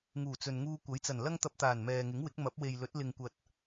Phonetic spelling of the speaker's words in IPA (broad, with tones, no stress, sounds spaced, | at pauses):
ŋ uː˨˩ t͡s ɵ˨ n ŋ uː˧ kʷ ɐ˨˥ j t͡s ɐ˨˩ n l ɐ˥ ŋ t̪ ɐ˧ p̚ t̪ aː˨˩ n m ɛː˨ ŋ ɪ˨˥ ŋ w ɪ˨˥ k̚ m ɐ˨˥ p̚ w e˨ j l ɵ˨˥ t̚ l ɪ˨ ŋ kʷ ɐ˨ t̚